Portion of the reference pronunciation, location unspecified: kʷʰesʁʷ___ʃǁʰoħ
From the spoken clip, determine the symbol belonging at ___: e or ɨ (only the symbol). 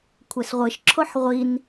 ɨ